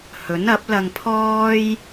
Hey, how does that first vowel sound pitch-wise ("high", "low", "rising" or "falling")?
rising